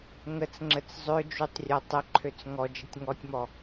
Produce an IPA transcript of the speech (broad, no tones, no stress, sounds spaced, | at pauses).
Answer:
ŋ ə t͡s ŋ͡ǁ ə t͡s zˤ ø d͡ʒ u tˤ rʲ ɔ tˤ ə ǃʰ ø t͡s ŋ ɔ d͡ʒ ə tʲ ŋ ɔ tʲ m ɔ